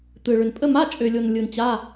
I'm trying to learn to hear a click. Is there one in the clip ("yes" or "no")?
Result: no